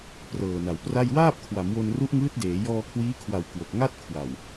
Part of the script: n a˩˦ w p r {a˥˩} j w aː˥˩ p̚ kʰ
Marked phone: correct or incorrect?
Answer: correct